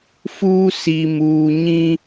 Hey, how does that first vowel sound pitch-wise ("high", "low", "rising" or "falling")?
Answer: high